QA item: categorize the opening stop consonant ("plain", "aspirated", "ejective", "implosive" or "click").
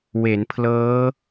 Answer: aspirated